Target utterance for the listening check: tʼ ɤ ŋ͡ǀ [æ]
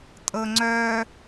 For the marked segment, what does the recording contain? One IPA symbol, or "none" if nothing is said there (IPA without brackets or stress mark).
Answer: œ